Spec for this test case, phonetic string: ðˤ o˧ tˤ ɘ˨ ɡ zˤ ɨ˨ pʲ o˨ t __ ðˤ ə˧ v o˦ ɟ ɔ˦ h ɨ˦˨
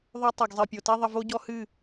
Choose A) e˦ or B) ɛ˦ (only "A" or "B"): A